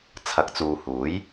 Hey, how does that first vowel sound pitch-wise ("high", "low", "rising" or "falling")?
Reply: rising